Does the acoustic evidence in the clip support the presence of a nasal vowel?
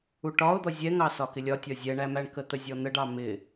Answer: no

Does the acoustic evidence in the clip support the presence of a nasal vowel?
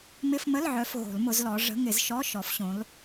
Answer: yes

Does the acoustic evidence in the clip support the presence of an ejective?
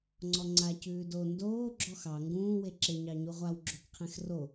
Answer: no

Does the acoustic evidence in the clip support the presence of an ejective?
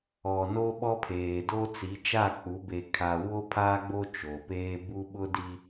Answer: no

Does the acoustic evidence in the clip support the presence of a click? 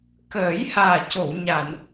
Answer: no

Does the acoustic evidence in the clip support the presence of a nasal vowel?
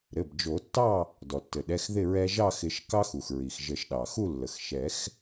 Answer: no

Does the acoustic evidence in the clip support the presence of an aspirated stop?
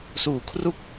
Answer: yes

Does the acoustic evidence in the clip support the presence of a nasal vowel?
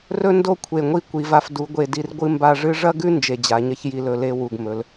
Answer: no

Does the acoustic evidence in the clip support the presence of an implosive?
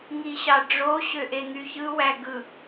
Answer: no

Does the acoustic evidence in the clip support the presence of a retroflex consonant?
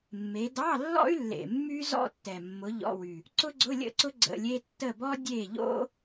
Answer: no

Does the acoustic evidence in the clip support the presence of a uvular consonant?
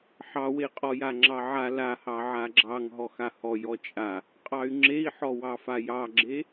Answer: yes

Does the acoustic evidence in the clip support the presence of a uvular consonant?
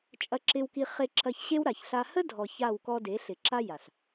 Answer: yes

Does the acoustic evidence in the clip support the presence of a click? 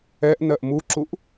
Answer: yes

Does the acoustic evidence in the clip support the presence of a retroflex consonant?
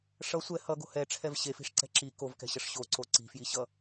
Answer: yes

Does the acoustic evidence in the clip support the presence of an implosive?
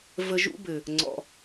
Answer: no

